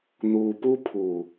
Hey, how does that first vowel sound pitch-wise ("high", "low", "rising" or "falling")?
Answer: low